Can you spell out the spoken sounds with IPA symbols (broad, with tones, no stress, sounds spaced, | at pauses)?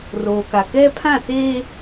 r oː˨ k a˨ k ɛ˦ pʰ ã˦˨ s eː˦